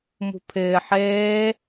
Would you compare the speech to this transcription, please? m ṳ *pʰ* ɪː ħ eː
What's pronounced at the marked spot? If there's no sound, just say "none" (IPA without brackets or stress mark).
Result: pʰ